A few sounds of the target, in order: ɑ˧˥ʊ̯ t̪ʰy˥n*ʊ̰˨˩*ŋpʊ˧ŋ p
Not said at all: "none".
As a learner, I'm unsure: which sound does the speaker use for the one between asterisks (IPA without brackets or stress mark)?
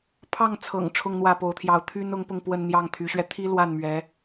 ʊ˧˥